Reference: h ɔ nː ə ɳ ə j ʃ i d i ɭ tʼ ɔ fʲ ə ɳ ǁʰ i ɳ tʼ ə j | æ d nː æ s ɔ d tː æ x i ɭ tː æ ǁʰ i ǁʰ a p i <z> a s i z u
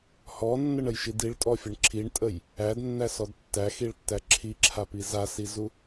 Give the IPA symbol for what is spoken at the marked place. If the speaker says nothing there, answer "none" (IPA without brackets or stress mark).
z